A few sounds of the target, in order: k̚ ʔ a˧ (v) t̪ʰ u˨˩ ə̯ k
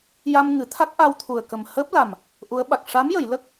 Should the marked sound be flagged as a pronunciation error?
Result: yes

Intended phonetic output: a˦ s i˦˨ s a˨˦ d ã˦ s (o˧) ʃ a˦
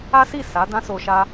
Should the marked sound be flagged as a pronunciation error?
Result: no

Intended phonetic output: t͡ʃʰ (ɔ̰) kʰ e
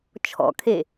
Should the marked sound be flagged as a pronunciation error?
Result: no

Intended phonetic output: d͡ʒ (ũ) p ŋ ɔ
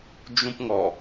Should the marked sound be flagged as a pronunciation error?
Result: no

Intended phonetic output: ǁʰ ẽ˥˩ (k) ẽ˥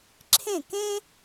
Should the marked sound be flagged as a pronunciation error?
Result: no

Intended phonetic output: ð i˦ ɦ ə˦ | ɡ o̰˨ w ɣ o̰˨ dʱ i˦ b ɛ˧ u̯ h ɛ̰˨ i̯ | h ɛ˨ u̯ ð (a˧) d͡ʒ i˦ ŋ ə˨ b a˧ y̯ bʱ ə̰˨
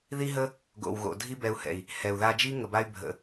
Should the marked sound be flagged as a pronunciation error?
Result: no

